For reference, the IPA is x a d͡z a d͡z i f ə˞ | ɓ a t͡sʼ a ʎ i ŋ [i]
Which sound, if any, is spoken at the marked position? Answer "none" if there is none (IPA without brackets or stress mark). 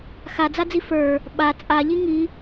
i